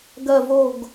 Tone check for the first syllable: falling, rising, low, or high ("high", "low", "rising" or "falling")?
falling